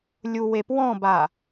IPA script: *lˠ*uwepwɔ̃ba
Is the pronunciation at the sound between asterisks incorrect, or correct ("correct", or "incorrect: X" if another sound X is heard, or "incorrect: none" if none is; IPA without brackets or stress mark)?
incorrect: lʲ